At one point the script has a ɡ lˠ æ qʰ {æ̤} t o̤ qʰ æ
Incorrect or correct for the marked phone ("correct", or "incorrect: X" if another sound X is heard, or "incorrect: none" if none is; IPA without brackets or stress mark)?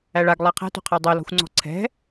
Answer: correct